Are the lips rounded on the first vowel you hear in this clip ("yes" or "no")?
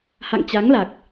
no